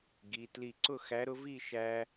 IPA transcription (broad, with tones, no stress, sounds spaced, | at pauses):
ɡ i˩˧˩ t l i˧˩ ǀ ʊ˥˨ x æ˨˥ ɾ ʊ˨˥ v i˥˨ ʃ æ˧